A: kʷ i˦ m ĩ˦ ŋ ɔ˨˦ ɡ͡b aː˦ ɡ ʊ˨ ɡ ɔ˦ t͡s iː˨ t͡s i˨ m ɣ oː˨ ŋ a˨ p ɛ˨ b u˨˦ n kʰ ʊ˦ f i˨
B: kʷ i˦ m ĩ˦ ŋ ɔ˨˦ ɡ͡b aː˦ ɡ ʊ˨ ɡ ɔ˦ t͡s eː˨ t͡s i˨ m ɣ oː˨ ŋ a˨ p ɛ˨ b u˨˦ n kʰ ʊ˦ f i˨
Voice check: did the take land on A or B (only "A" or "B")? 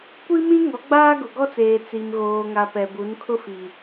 B